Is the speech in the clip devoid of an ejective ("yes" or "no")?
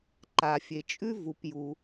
no